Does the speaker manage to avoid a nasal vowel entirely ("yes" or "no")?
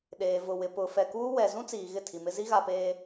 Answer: no